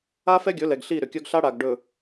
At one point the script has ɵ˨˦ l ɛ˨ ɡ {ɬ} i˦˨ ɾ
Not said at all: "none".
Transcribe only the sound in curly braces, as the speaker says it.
ɬ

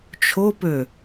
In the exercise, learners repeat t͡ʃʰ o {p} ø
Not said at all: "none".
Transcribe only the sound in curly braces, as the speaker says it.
p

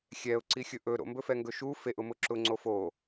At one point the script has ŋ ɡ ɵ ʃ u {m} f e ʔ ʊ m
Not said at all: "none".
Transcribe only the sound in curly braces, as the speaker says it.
none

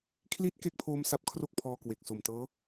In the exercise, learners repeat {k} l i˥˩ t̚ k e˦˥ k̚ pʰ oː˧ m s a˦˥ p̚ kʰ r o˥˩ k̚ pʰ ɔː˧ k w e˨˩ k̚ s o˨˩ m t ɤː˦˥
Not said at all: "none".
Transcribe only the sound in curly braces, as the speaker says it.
kʰ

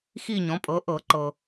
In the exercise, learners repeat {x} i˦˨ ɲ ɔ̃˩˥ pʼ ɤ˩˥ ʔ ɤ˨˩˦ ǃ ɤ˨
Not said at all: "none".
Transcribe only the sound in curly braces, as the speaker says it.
x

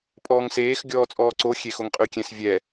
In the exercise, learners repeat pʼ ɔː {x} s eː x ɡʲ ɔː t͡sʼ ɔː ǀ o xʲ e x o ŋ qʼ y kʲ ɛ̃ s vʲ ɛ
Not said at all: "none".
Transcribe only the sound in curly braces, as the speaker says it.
ŋ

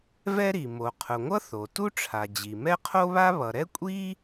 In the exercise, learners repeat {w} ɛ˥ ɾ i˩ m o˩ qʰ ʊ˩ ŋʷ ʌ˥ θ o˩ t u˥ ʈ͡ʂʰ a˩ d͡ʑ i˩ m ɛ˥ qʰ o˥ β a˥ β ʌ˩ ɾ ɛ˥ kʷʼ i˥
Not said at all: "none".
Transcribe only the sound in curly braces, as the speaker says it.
v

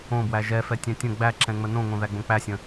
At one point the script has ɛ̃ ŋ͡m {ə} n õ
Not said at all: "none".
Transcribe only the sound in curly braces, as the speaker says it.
ə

